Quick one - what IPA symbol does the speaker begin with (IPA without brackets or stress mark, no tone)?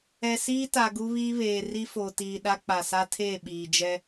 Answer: ɛ